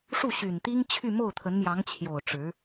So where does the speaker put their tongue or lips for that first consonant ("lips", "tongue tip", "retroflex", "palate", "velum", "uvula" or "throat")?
retroflex